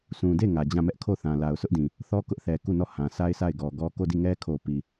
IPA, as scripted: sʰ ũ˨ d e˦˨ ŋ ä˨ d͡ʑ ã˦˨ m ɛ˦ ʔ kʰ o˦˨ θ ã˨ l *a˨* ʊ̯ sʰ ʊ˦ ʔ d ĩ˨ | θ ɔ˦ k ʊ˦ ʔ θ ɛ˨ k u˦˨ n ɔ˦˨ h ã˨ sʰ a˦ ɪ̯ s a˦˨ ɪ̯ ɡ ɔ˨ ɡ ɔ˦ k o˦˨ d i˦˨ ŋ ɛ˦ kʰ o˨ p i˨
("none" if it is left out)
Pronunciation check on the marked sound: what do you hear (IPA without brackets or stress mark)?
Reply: a˨